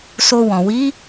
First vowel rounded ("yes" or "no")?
yes